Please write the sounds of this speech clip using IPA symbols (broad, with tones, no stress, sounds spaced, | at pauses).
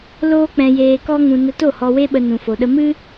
l oː˦ k͡p ɛ̃˧ j eː˧ k ɔ˦ ŋ ũ˧ n ə˧ t o˦˨ h ɔ˧ w e˦ ɓ ə˧ n ũ˨ f o˨ ɗ ə˧ m ɨ˦